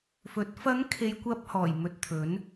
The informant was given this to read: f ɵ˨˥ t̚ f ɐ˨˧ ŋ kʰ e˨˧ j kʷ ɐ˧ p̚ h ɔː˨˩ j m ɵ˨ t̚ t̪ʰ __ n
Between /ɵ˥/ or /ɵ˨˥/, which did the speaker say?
ɵ˨˥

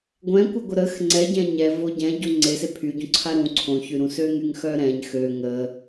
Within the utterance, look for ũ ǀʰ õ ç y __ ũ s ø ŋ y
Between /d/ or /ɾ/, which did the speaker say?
ɾ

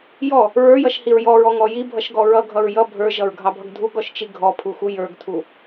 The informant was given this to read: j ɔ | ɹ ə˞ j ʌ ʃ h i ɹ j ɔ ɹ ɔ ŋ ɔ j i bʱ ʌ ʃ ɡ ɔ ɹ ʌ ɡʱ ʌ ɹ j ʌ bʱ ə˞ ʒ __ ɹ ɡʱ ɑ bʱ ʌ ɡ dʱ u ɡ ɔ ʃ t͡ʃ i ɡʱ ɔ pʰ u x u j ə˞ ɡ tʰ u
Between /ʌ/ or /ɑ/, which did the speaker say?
ʌ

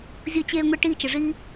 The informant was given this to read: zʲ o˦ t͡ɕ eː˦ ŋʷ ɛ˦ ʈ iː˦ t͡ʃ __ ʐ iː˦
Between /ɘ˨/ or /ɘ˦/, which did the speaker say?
ɘ˨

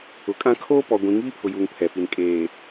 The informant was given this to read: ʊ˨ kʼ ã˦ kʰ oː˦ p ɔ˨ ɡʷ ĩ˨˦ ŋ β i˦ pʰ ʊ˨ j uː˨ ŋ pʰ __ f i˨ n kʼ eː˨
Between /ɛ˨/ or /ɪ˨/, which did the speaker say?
ɛ˨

